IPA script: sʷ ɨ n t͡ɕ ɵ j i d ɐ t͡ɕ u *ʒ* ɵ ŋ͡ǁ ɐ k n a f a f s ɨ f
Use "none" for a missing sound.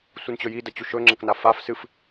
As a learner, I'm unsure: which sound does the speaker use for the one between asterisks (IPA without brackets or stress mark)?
ʃ